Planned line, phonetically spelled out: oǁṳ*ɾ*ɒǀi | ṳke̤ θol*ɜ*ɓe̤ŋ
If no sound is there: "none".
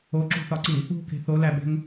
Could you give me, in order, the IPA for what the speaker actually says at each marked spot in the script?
θ, æ

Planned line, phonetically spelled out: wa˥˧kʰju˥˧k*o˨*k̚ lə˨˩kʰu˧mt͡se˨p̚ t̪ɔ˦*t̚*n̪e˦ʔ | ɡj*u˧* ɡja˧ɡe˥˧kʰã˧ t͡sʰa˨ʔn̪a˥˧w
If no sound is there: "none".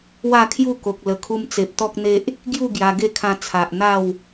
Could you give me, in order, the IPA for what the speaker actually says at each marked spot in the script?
o˨, k̚, u˥˧

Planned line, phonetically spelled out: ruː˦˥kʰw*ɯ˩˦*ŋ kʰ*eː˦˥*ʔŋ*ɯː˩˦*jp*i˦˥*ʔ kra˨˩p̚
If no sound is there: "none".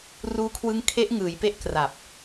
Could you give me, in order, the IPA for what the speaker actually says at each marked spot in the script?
ɯ˦˥, e˦˥, ɯː˩˦, e˦˥

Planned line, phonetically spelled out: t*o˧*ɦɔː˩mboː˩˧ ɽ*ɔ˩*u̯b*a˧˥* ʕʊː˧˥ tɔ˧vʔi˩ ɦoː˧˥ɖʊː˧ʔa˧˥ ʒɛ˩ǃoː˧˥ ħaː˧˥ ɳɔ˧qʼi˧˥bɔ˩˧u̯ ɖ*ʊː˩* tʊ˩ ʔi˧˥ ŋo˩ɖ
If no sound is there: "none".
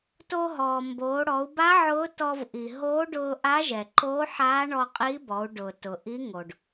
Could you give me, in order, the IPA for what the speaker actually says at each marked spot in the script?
o˧, ɔ˩˧, a˧˥, ʊː˩

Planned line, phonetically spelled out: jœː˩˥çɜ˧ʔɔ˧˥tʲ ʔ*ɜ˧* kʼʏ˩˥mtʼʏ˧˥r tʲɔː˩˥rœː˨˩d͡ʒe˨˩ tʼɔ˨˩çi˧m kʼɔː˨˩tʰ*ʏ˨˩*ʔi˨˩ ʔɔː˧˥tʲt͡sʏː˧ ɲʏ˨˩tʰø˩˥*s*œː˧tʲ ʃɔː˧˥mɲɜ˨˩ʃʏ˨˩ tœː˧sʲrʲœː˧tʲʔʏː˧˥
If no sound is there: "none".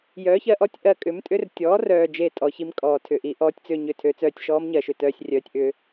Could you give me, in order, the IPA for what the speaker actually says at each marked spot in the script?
ɜ˧, ʏ˨˩, t͡s

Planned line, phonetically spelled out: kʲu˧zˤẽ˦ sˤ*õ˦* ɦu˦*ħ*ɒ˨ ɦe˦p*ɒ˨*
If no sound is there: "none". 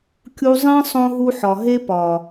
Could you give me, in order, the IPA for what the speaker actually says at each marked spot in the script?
õ˦, ħ, ɒ˨

